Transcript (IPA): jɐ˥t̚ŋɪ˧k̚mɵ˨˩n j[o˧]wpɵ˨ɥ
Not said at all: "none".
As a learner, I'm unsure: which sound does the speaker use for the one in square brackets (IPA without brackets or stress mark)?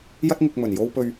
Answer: o˧